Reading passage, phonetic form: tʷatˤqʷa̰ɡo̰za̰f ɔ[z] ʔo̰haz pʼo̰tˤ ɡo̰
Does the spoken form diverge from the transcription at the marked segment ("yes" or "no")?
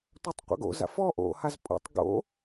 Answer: yes